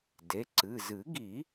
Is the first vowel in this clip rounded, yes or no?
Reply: no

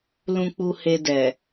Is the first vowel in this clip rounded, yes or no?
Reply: yes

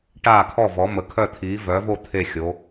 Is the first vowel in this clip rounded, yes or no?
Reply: no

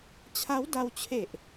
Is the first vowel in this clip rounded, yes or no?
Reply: no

